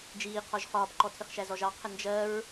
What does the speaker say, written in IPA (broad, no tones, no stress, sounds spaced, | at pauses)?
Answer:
d͡ʒ iː qʰ ɔ ʒ χ ɒː p ǃ ɔ tʰ ɪ χ ʃ æ z ɔ ʒ ɑ qʰ ə n d͡ʒ ɜ ɹ